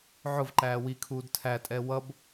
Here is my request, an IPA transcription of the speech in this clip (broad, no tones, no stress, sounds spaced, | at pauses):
ʕ ʊ v ǃ æː w i kʰ uː d tʰ æ tʼ ɛ w ʌ b